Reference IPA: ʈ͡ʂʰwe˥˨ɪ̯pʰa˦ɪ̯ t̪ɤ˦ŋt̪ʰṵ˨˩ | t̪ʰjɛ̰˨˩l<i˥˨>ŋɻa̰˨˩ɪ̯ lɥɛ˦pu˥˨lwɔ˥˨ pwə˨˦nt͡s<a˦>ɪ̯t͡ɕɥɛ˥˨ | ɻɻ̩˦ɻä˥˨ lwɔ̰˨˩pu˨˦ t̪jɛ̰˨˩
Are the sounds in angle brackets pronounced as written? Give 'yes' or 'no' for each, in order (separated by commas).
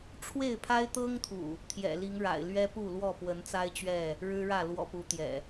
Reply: no, yes